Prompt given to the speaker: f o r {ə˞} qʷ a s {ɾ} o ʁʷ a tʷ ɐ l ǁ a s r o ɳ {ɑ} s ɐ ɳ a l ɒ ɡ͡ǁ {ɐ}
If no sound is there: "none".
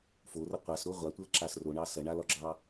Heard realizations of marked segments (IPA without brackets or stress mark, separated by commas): ɐ, ɾ, ɑ, ɑ